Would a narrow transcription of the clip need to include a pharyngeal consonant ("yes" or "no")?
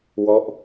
no